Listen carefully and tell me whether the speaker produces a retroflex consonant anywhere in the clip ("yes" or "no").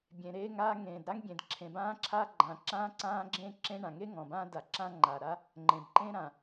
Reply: yes